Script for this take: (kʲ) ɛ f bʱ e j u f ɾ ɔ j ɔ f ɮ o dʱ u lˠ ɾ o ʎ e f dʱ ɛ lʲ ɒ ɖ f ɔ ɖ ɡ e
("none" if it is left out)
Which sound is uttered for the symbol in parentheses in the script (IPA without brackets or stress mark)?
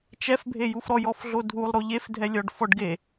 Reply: t͡ʃ